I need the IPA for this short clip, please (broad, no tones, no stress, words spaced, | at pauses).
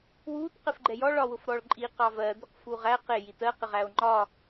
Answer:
wut qɪfɡ͡ǃɛjɔ ɭɒwʊfɾɔɭǃʼi qɑvɜ d̪ʊqfuʁæ qɪ jitɜ qɪʁæo̯ŋ͡ǃɒ